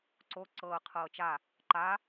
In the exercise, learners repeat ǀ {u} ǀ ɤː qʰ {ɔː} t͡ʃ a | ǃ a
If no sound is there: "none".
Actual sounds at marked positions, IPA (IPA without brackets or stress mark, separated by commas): o, ɤː